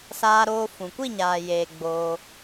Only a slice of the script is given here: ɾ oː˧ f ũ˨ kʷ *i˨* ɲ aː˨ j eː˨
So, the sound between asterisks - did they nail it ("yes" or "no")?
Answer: no